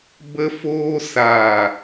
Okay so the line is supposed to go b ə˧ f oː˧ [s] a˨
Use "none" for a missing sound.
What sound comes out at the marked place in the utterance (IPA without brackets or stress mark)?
s